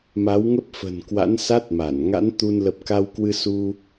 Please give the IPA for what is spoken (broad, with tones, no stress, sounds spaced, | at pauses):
m a˨˦ w ŋ ə˦˥ p̚ f ə̤˨˩ n k w a̰˧˥ n s a˦˥ t̚ m a˧˩ n ŋ a̰˧˥ n t̪ u˧ n l ə˨˩ p̚ k a˧ w k w ɨ˧ s u˧